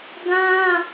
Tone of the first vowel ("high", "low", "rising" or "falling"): high